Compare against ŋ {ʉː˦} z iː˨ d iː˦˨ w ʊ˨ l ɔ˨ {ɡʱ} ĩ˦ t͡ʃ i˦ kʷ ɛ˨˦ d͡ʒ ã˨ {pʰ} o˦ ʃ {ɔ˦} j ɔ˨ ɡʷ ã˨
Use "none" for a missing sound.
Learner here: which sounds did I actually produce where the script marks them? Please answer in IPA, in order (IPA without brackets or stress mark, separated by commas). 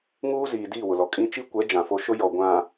uː˦, kʼ, f, ʊ˦